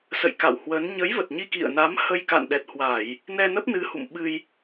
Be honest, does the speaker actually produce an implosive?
yes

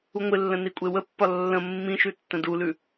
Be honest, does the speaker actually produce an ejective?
yes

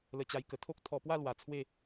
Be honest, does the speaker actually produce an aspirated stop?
yes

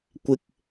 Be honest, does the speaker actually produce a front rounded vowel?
no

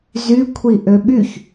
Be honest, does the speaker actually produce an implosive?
yes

